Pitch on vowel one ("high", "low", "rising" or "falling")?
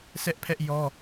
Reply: high